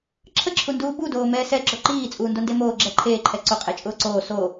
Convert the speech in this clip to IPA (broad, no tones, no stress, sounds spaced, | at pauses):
ǁʰ ə ǁʰ u n d uː b u d oː m ɛː s ɛ ǁ ʊ ǃ iː t͡sʼ uː n d o n d e m oː ɡ͡ǁ ɛ ǃʰ eː ǃʰ ɛ ǀ o qʼ e t͡ʃʼ ʊː ǀ oː s o